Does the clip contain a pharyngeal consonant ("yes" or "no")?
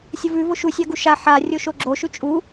yes